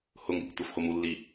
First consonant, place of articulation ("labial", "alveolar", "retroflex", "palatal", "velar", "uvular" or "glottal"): glottal